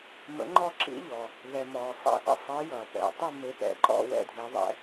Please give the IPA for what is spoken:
mə̰˧˥ŋ͡ǃɔ˥˧ǁḭ˧˥ʎɔː˩ | ðɛ˩ mɔː˩sˤḭ˧˥ʔə̰˥˧ sˤe˧˥jʌː˩pɛ̰˩tˤi˥˧ me˧˥pɛ̰˩ǃɔ̰˥˧ wɛ̰˥˧dʱe˧˥ðˤɛ̰˧˥

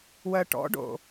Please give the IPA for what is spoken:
wɜʈɔ̰ɖo̰

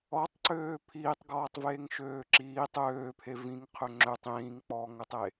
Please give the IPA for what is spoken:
ɔtˤǀøː pʰiːtˤɡɔːtˤveːŋ ʃøːǁiː tˤøːpʰe vĩŋ qʰøŋ͡ǁøtˤ ĩːŋk͡pɔːŋɵtˤe

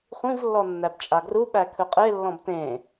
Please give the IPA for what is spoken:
χʷĩvlːɔ nːæbt͡ʃʼaɡruɓæ kʰɵqʼelːɔ̃b tẽ

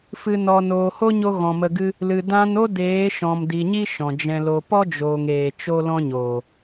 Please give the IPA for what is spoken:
fɨ˨ nɔ˨ noː˨ho˦ɲo˧ ɣɔ̃˨mə˧ɡɨ˦ | lɨ˨ dã˧no˦ deː˨˦ʃɔ̃˨mdi˨ɲi˦ ʃɔ̃˨d͡ʒɛ̃˧lo˧ pɔ˦d͡ʒoː˨ŋeː˨ t͡ʃo˦lɔ̃˦ɲoː˨

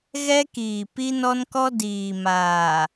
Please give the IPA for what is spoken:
ɣɛ˦kiː˨ pi˦nɔ˦nkɔ˦ diː˨maː˨

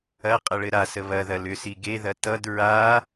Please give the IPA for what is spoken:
ɐ qʼɐɭɘɾasə βɐðɐ lʏsi ɡeðɐ tʌd ɹa

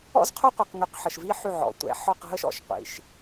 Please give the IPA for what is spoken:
ɔ̰˦zqʰo˦qʷi˨q ŋy˨qħə˨ʃvi˦ ħy˦˨ʕɔ̰˨˦ tʷɛ̰˨˦ ħɔ˦˨qɦə˦ʃ ɔ̰˨ʃ qʷḭ˨˦ʃ

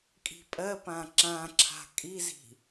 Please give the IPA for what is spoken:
kʼi̤pʼɜpã ǁãǁʰa̤ kʼizi̤

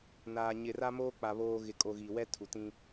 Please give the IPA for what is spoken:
naː˨ ɲɪ˨ra˦moː˦k͡pa˨ βoː˨ ɣɪ˨kʼo˨ ɣi˨wɛ˦tʰu˨tĩ˦

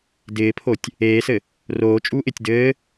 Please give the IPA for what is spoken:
dɪːpʰotʲ | eːsɘ | roːt͡ʃʼuːʔ ɪtʲ dɘː

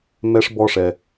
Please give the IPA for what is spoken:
mɛ˥ʂbɔ˦ʂɛ˨

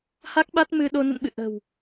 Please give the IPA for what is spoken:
ha˦˥k̚ɓa˦˥t̚ mɨ˧ɗo˧ nə̰˧˨nɓɨ̰˧˨ ʔə̤˨˩w

